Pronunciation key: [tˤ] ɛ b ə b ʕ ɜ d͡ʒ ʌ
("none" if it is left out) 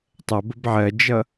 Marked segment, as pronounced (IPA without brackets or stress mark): tˤ